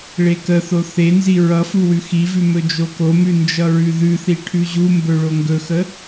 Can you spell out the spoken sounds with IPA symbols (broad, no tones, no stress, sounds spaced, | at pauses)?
ɭ e k ə θ o θ e n z i ɹ ʌ f u w ʉ x i v ʉ m ɵ d͡ʒ o k o m ʉ n d͡ʒ ʌ ɹ ʉ ð ʉ θ i ʈʰ ʉ ʑ u m b ɵ ɭ o ŋ ɡ ɵ x ə